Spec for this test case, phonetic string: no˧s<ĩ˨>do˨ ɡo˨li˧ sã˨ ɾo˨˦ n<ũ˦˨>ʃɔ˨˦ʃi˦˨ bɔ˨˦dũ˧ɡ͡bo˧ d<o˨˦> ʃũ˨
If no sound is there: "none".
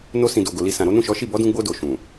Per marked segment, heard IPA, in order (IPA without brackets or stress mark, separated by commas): ĩ˨, ũ˦˨, o˨